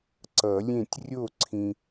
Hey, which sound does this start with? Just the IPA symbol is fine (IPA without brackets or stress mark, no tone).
ǀ